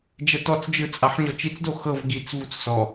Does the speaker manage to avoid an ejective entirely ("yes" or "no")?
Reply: no